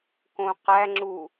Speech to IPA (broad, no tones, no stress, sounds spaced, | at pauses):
k õ q æ ŋ͡ǁ u